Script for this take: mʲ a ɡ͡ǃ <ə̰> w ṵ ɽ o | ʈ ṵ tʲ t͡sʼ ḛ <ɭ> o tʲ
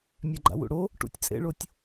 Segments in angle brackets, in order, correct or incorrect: incorrect: a̰, correct

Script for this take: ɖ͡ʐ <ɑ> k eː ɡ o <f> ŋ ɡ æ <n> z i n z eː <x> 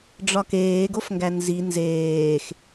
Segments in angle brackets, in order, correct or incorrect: incorrect: ɒ, correct, correct, correct

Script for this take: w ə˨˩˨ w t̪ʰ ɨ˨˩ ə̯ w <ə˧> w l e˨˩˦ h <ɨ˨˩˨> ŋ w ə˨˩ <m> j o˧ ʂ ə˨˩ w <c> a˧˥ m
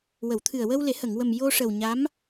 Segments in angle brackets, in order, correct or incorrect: correct, incorrect: ə˨˩˨, correct, incorrect: ɲ

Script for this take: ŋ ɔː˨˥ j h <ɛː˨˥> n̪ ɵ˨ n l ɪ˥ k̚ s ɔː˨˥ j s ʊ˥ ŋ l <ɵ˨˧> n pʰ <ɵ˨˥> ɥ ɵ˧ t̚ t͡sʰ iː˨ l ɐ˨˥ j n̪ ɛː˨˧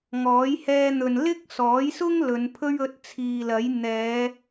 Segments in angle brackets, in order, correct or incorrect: incorrect: ɛː˧, correct, incorrect: ɵ˥

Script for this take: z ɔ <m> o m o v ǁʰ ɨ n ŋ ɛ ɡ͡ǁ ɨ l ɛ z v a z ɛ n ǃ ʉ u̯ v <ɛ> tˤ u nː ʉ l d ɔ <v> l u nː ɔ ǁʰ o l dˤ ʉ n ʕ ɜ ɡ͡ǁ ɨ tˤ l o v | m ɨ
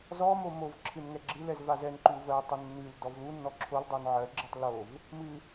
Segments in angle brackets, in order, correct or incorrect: correct, incorrect: ɜ, correct

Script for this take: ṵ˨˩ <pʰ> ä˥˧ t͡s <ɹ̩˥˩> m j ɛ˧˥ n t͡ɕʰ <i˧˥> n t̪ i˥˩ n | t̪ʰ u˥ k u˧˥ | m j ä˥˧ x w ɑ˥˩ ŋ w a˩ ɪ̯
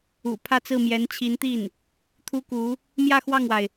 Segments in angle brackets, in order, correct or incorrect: correct, correct, correct

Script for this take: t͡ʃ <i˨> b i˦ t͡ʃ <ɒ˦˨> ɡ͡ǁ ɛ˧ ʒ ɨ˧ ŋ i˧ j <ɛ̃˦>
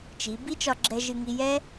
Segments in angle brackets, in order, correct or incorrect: incorrect: i˨˦, incorrect: ɒ˧, incorrect: ɛ˦

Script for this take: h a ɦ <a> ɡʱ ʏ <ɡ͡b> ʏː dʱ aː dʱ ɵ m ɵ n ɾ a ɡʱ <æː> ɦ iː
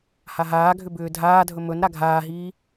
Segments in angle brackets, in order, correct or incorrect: incorrect: aː, incorrect: b, incorrect: aː

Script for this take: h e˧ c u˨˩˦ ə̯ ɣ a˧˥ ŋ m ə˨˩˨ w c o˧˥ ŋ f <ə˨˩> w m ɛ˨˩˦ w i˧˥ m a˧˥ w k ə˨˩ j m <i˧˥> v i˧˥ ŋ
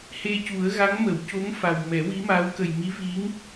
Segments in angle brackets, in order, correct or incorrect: incorrect: a˨˩, correct

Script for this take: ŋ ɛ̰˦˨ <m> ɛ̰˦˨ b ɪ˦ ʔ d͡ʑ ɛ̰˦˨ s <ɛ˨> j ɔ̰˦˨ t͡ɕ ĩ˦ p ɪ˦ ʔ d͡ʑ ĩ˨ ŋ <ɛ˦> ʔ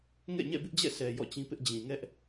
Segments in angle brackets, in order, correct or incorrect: incorrect: ɲ, correct, correct

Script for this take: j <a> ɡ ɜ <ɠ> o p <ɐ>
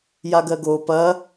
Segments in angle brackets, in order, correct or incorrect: correct, incorrect: ɡ, correct

